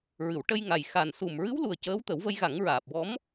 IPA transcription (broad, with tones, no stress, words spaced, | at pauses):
ɹɨ˨˩˨wʈə˧j ŋa˨˩jxa˨˩n su˨˩m ɹɨ˧˥wlu˨˩ə̯ cəː˧˥wt̪ə˨˩˦wvə˧jɣa˨˩˦ŋ ɹaː˨˩p̚ wɔ˧˥m